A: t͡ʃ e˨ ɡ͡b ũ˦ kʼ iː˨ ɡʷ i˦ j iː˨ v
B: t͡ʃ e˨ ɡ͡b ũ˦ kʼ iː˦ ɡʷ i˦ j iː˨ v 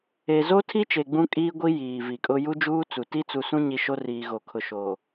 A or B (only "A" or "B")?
B